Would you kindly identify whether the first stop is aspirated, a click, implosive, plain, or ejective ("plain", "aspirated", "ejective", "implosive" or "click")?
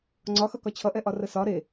click